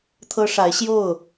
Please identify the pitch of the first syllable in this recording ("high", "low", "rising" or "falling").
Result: high